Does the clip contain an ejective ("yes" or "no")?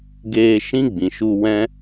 no